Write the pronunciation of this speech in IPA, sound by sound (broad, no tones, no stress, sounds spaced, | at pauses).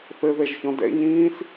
θ ɘ ð ɛ ʒ ç ɔ̃ d ɛ̰ ɲ ĩː s